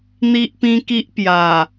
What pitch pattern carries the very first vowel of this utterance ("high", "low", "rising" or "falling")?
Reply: high